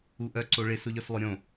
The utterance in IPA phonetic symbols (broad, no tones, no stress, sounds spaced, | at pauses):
u ʔ œ ǀ o ɭ ɪ s ʊ ʎ œ s lˠ ʊ ɾʲ õ